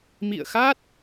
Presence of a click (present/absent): absent